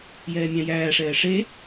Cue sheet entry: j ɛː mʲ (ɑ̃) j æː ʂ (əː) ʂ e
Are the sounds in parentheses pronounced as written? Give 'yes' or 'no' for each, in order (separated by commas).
yes, no